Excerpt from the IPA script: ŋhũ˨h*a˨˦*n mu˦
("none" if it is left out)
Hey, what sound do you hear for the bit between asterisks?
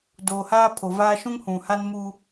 a˦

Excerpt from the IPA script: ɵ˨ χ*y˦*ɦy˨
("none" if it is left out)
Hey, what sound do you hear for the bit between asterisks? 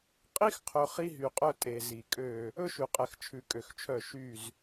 i˦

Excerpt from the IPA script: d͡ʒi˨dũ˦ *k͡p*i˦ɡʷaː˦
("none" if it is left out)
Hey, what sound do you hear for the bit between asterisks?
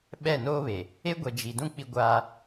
k͡p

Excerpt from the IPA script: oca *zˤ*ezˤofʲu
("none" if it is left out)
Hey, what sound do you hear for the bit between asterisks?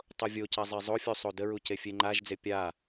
zˤ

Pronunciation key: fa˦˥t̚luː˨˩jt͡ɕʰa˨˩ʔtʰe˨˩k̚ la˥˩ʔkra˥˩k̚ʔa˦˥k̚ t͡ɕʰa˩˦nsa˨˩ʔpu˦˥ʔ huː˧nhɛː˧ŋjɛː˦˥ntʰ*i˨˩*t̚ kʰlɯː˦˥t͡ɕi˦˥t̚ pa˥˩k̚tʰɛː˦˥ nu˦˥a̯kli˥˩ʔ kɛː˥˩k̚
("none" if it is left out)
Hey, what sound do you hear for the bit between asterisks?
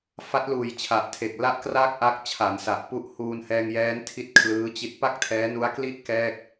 i˦˥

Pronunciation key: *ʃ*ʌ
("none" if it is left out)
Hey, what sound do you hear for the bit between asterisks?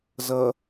z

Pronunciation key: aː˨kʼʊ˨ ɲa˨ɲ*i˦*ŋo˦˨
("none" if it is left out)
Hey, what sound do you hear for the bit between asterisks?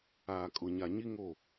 i˦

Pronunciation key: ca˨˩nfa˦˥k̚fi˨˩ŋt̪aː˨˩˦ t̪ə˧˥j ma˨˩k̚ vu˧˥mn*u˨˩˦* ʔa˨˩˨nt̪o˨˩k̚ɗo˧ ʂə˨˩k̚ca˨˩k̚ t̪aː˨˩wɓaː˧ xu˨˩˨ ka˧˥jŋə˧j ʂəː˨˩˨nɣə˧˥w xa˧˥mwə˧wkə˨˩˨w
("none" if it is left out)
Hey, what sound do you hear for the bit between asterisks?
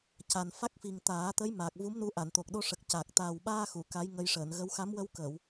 u˧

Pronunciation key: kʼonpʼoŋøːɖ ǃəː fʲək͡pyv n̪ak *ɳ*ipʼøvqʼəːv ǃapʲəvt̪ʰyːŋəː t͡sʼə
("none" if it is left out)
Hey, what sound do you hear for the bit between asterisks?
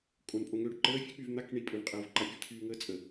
ɳ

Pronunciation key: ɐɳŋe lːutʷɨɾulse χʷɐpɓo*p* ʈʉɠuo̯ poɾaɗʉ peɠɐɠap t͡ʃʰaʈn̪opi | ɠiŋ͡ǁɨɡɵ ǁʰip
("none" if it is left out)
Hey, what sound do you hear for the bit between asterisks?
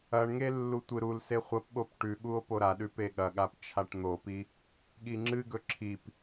p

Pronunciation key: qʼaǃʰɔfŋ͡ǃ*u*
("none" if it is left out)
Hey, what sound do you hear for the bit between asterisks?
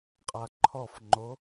o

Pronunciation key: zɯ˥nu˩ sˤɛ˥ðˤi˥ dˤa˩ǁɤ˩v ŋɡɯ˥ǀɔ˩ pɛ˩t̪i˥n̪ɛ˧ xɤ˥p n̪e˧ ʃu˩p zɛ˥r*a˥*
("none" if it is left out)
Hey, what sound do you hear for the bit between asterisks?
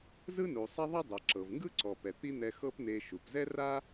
a˥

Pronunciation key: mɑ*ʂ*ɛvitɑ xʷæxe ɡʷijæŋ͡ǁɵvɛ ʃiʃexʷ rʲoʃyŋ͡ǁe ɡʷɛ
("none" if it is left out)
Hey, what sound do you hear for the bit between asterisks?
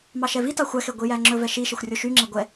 ʃ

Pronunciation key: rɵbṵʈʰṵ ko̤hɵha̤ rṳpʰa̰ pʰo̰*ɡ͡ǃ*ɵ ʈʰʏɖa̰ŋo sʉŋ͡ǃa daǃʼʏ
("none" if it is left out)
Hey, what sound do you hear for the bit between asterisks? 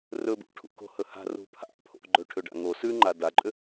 ɡ͡ǃ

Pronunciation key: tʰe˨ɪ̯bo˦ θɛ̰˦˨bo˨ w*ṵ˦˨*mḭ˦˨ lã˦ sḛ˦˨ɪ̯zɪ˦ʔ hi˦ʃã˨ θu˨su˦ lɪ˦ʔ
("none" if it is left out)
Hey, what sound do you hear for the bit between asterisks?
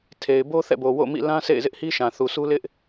o̰˦˨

